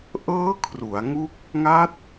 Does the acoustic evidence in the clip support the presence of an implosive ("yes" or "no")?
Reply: no